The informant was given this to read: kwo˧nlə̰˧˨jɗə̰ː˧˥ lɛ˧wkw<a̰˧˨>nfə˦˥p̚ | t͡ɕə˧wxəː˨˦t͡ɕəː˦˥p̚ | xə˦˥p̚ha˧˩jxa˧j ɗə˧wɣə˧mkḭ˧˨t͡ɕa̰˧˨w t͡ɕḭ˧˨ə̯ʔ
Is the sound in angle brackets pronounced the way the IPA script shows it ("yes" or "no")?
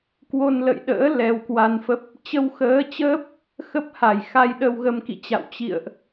no